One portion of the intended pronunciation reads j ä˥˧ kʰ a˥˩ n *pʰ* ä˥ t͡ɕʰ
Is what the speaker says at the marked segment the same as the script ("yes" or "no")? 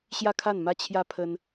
no